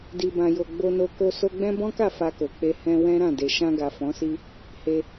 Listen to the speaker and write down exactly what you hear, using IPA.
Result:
di˨bã˨jo˨ ɡ͡bo˧no˧ ko˧ so˧ɡ͡bɛ̃˦ bɔ̃˦ka˦˨ fa˧ko˨k͡pe˧ hɛ̃˧ wɛ̃˦ ɾã˦˨de˨ ʃã˧ɡa˨ fɔ̃˨˦si˦ | he˧

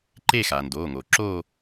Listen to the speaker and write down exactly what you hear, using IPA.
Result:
ǃe˥˧ xaː˩ndoː˩˧˩ŋoː˩ ǁoː˥˧

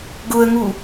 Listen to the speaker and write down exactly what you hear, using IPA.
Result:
ɡʊə̯ŋu

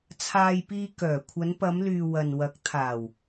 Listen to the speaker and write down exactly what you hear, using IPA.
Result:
t͡sʰaː˧jpiː˧ kœː˨˩kʷʰɐ˨˧npɐ˨˧mlyː˨ wɐ˨nwɐ˨˥k̚ t̪ʰaː˨˩w

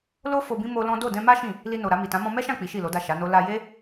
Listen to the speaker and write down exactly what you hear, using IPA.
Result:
lo˦ fo˧bĩ˦ mo˦lɔ̃˦ do˦˨dɛ̃˧ma˦ ʃĩ˦˨ | li˧no˨ɾa˧ mi˨tã˨˦ mɔ̃˧mɛ˦ʃã˦˨ k͡pi˨˦ʃi˦˨lo˨˦da˦˨ ʃa˨˦no˦ la˧ je˦

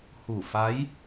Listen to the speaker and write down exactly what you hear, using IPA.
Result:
huː˧˩fa˧˥j

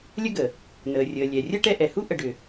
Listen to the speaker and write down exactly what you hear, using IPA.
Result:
lʲə˦ɡə˩ | nəː˩rʲəː˩ lʲɛ˩ rʲəː˥ʈɛ˦ʔɛ˩hu˥ ʔə˨ɖʏ˩

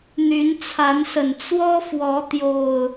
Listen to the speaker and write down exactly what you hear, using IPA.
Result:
n̪y˨˦nt͡sʰa˨˦nsə˨˩n t͡swɔ˦fwɔ˨˦ t̪jo˨˩ʊ̯

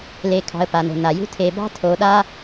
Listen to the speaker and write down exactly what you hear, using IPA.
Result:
le˨kʰɑ̤˨ə̯pa˩no̤˩ na˩jṳ˦ tʰe˨bɑ̤˥tʰo˨ ɗa˦

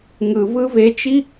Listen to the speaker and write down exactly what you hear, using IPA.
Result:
ŋɯvɯ vet͡ʃi

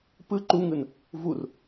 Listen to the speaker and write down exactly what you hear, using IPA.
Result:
pɯ ǃuŋɯn | vur

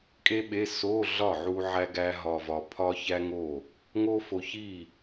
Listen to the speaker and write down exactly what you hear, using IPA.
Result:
kʼe˥ɓe˧˥˧ so˧˥˧ ɮɒ˥˩ʕu˧ ʕæ˥ɡæ˥ ɦɒ˧vɒ˧ pʰɒ˥çæ˥ŋo˥˩ | ŋo˥fo˧ çi˥˩

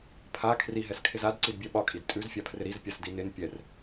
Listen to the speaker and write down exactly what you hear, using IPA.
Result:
pʰa kʰriɦɛskʰɪz adǀidbʲɛ ɓɒkʼid tʼʉzfʲapʰrɪ ɾizpʲasdi nɪn pʲɛr

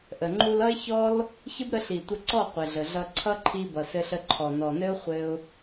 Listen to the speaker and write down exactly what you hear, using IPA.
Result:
ʔə˨ ŋ͡ǃu˧lʌ˦ɪ̯çɔ˦l | çə˦bɾə˧ɬi˨tʷə˧ ǀɔ˦˨ qʷɘ˨ɮə˨ɮʌ˧ ǀʰʌ˦ǃʰi˧ bʌ˨sɘ˧ɬə˧ ǃʰɔ˨nɔ˨nɘ˦ʊ̯ χʷɘ˧ʊ̯

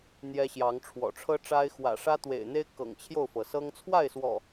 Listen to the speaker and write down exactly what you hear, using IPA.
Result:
n̪jɛ˦ɕjɑ˨˦ŋʈ͡ʂʰwɔ̰˨˩ ʈ͡ʂʰɤ˦ʈ͡ʂa˦ɪ̯ xwä̰˨˩ʂä˦ t̪wḛ˨˩ɪ̯n̪e˦ɪ̯ kɤ̰˨˩ŋt͡ɕʰjo˥˨ʊ̯fɤ˩sɤ˦ŋ t͡sʰwa˥˨ɪ̯swɔ̰˨˩

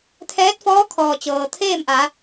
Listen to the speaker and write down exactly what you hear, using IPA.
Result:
t̪ʰɛː˧˥t̚fɔː˧˥kʰɔː˩ t͡ɕɤː˩t̪ʰeː˥˨mʔa˩˧

